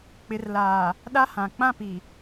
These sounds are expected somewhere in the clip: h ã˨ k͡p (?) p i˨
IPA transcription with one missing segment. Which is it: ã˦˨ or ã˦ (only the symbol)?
ã˦˨